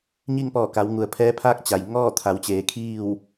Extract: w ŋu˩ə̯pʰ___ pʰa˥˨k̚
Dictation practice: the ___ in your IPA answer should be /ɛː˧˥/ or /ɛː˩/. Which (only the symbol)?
ɛː˧˥